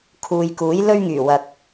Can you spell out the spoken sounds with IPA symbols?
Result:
kʰ uː˨ j k uː˨˥ j l ɵ˥ ɥ ŋ yː˨˩ w ɐ˨ k̚

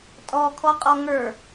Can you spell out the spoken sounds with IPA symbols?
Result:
tʼ ɔ kʰ ɔ qʼ ɔ ŋ ə˞

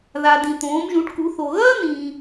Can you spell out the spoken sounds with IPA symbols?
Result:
ð a˩ d ĩ˩ t̪ õː˩˧ m ʒ ũ˩˧ ʈ k u˩˧ θ o˩ ɣ ɐː˥ n̪ ĩː˩

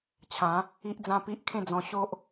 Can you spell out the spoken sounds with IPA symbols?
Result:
t͡ɕʰ ã˨˦ | i˦ ʔ d͡z ã˦ p i˦ ʔ kʰ ẽ˥˧ d͡z ɔ̃˧ ɕ o˦ ʔ

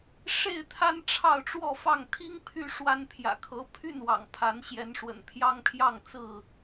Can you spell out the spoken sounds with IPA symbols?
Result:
ʂ e˥˨ ɪ̯ t̪ʰ a˦ n ʈ͡ʂʰ ɑ˥˨ ʊ̯ ʈ͡ʂ w ɔ˥˨ f ɑ˥˨ ŋ t̪ʰ i˦ ŋ pʰ y˥˨ ʂ w a˦ n pʰ j ä̰˨˩ kʰ ɤ˨˦ pʰ y˥˨ n w ɑ̰˨˩ ŋ pʰ a˨˦ n ɕ j ɛ˨˦ n ʂ w ə̰˨˩ n pʰ j ɑ˦ ŋ pʰ j ɑ˥˨ ŋ t͡s ɹ̩˥˨

